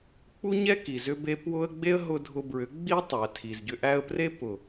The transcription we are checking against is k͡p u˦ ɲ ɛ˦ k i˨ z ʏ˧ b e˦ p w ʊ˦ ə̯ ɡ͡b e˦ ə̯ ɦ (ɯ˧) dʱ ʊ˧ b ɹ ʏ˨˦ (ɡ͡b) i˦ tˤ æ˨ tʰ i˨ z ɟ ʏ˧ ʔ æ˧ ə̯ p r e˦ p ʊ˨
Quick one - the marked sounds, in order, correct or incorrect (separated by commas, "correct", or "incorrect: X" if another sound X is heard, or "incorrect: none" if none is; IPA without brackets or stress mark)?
incorrect: ʊ˧, correct